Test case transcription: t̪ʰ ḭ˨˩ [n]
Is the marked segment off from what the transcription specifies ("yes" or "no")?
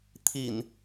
no